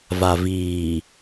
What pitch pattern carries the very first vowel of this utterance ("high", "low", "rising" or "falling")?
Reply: low